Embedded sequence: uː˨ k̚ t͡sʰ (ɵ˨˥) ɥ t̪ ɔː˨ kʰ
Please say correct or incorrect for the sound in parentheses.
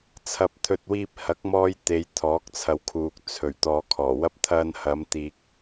incorrect